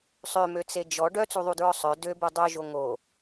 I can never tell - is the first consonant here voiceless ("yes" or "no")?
yes